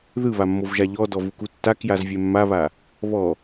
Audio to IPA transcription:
ðɯβamːovʒa ʎɔ dɔvukutːak jazvʲɛmːaβa | βɔ

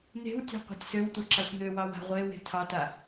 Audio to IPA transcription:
n̪e̤wtʲɑ̤ qʷa̤tʲsøwtʷa ǁaxʷn̪øwɑw a̤ʁʷewe̤ tʰɑta

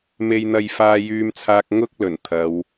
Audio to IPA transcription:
me˧jn̪ɐ˧jfaː˧ jyː˧mt͡sʰaː˧k̚ ŋʊ˥k̚ lɵ˨˩nt̪ʰɐ˨˧w

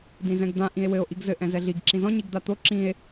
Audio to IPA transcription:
dĩzɛ̃ɡd̪ã ʔĩe̯wɘo̯ ʔiɡzɘ ʔɛ̃zɛɮiɡ ǁĩzɔ̃ ɲiɡd̪at̪o ǁĩe̯

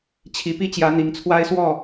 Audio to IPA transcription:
t͡ɕʰi˧˥pi˥t͡ɕjä˧˥ n̪i˧˥ŋt͡sʰwa˥ɪ̯swɔ˥˩

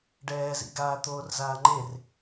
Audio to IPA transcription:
ɖɛːzḭɡaː t̪oːrzaːŋ͡ǃer

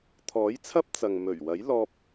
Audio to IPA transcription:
t̪ʰɔː˨˥jt͡sʰɐ˥p̚ t͡sɐ˨ŋ mɵ˨˩ɥwɐ˨˥j lɔː˧p̚

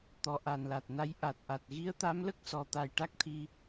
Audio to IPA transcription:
t̪ɔ˨˩ʔa˨˩nla˨˩t̚na˧j ʔa˨˩t̚ʔa˨˩t̚ ɣi˧˥ə̯t̪a˧˥mlə˦˥k̚sɔ˨˩ t̪a˨˩jʈa˦˥k̚t̪ʰi˧

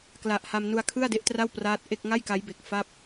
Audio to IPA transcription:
kla˨˩ʔ ha˧mnu˧a̯kʰɯ˥˩a̯ de˦˥ʔtra˥˩wpraː˦˥t̚ ʔe˥˩k̚ ŋa˥˩jka˦˥jbe˨˩k̚ fa˥˩p̚

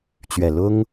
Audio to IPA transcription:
t͡ɕɥɛ˨˩lʊ˥ŋ

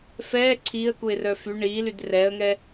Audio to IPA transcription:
fɛː ǀʰiːə̯kuɪ̯rœ fy ɳiːlyd rɛːə̯ŋɛ

